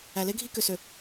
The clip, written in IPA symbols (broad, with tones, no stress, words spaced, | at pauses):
æ˨le˦ɡʱi˦kø˨ sø˨